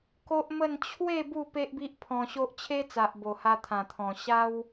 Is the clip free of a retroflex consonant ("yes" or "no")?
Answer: yes